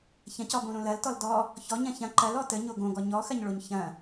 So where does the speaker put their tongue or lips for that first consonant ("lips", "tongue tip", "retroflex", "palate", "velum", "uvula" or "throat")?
palate